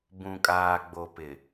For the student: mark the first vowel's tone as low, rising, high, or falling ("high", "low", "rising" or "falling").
low